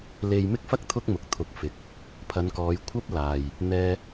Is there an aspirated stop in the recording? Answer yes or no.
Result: yes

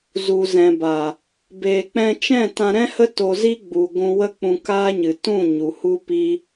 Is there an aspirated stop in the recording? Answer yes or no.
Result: no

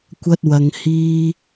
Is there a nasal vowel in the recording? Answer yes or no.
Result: no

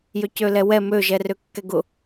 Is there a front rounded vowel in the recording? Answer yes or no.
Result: yes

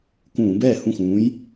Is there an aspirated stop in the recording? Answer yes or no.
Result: no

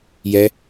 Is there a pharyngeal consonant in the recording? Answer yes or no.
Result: no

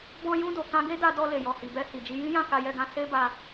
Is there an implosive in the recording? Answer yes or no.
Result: no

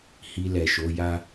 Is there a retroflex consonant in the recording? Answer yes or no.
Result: no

